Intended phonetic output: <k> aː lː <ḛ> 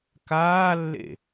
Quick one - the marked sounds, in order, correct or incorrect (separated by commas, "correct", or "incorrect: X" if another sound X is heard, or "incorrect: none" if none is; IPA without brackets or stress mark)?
correct, correct